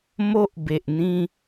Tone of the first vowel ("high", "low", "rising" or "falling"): high